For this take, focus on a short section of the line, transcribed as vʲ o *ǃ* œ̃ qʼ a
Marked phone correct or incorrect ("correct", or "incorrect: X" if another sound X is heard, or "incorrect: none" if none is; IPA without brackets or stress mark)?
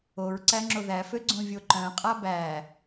correct